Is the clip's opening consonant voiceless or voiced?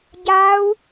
voiced